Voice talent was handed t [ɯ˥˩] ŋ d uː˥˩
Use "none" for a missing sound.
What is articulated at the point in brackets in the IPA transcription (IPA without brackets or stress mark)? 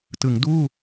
ɯ˩˦